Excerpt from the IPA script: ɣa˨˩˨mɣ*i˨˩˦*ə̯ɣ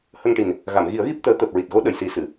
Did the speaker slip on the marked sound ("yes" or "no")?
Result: no